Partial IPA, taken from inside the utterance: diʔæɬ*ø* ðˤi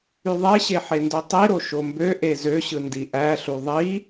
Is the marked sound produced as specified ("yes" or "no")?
no